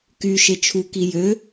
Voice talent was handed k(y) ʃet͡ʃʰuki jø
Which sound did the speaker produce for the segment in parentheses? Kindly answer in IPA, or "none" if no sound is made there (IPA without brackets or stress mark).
y